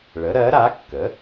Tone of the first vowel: rising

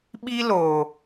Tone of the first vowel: high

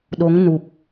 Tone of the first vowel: rising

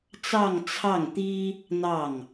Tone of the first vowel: falling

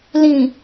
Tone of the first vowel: low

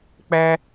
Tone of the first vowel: high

